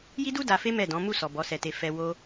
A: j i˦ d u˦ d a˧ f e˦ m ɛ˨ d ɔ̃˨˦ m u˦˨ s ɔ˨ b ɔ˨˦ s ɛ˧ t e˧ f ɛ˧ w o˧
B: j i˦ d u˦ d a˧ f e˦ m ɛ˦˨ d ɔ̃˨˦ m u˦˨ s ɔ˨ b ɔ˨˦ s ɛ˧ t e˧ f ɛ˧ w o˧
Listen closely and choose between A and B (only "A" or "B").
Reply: B